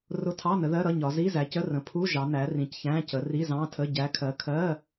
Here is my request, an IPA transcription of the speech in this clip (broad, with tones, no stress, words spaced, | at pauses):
rʊ˧˥˧tʰɑ˧˥˧nə˨˦ðɜ˧˥˧ ɾʌ˧˥˧ɲɒ˨˦ zi˧˥˧zæ˨˦cə˧˥˧rə̃˨˦ pʰu˧˥˧ ʒɑ˨˦næ˨˦ rĩ˨˦cçæ̃˧˥˧cə˨˦ ri˧˥˧zɑ̃˧˥˧tʰə˧˥˧ ɟæ˨˦kʰɜ˨˦kʰɜ˧˥˧